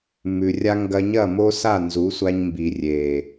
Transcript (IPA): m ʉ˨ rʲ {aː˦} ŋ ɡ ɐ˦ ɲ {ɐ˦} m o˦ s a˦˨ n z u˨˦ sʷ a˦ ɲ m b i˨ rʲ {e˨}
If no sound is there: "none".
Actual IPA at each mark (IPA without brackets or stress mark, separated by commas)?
a˦, ɐ˦˨, e˨